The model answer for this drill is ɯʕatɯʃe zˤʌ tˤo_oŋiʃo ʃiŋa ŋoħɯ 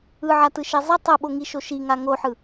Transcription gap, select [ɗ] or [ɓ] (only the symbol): ɓ